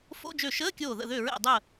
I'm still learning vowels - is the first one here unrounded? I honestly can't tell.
no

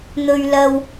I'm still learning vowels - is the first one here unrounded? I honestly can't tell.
no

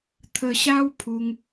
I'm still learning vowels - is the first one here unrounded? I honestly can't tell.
yes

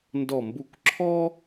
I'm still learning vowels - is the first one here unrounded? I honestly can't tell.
no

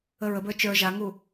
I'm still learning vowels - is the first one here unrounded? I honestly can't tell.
yes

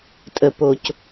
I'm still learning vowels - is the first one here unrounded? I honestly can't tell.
yes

